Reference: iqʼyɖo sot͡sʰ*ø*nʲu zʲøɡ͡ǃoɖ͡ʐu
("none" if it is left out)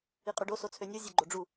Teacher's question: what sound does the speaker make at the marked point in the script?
ø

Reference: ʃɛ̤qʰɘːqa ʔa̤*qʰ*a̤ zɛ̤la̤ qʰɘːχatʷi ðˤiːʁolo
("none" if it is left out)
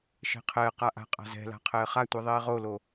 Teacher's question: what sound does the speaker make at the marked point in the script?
qʼ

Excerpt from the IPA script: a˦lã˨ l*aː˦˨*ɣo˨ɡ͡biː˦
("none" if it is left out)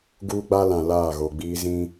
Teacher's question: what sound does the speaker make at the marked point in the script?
aː˦˨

